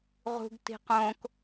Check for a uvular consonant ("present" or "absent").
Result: present